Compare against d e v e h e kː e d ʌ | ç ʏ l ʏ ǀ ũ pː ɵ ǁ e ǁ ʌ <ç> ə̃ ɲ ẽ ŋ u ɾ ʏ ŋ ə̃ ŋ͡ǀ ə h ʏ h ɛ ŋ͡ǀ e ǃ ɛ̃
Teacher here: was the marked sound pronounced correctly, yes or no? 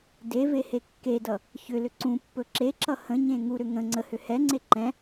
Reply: no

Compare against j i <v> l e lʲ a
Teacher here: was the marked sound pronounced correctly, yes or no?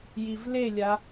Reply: yes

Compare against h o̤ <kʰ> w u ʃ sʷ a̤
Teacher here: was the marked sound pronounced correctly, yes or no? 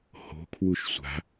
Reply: yes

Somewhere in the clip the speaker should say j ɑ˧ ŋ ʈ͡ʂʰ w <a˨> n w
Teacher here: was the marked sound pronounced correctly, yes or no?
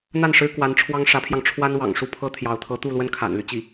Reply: no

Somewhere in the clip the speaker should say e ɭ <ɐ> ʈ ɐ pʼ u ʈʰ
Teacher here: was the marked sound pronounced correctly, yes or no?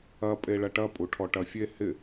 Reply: yes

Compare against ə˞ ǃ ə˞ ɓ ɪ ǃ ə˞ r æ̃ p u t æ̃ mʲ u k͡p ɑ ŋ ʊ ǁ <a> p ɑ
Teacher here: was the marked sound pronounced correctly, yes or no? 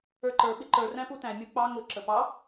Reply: no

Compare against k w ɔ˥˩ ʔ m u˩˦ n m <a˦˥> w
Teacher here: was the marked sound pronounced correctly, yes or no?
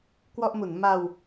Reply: no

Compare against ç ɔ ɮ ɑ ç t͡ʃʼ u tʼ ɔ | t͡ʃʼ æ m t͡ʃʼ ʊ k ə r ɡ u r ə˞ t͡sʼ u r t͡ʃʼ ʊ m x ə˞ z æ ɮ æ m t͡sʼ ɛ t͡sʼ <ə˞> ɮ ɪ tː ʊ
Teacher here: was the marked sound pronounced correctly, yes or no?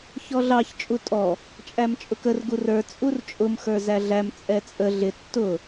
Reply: no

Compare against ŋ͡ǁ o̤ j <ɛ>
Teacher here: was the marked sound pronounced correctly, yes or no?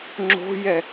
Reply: yes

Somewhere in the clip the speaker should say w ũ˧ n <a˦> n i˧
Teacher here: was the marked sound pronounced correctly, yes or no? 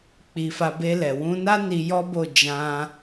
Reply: yes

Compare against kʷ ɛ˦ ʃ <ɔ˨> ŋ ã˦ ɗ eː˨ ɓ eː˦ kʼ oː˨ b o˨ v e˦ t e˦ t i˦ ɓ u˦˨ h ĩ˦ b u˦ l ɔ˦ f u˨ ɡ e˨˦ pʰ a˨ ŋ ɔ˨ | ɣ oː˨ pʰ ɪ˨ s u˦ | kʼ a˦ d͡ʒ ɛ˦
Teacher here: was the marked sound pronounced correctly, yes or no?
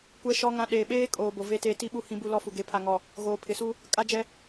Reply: no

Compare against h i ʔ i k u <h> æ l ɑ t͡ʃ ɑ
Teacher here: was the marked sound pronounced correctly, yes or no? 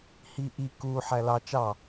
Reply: no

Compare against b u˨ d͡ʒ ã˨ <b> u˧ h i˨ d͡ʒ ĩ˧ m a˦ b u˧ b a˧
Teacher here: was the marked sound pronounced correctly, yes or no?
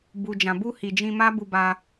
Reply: yes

